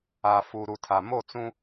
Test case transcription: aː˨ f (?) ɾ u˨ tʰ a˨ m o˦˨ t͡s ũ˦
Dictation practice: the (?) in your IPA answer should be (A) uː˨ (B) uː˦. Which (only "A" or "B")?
A